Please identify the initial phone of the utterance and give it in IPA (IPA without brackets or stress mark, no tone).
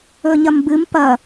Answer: ɵ